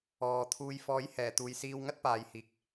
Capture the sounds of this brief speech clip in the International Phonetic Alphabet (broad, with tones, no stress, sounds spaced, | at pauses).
ɔː˨ t̪ʰ uː˧ j f ɔː˨˥ j h ɛː˨˩ t̪ uː˨ j s iː˧ w ŋ ɐ˥ t̚ p aː˨ j h iː˨ k̚